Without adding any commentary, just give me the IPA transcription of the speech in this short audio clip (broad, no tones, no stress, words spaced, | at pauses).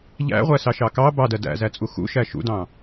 ʎæ̰ʁʷæsɑʃɑ kɑ bɑdɜ dæ̰zæt͡sʼu xṵʃæ ʃṵdɑ̃